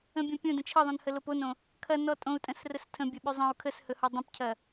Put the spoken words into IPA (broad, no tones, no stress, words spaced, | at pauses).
ə̃bʲõ pʲõdə̃ t͡ʃʰɐðˤõnhəlop onõ | kʰɐnɔ tʼõu̯tʼə̃srəs tʰə̃bʲɐɓʉ zˤə̃u̯ kʰəshɵhɔ dˤə̃pcʰɐ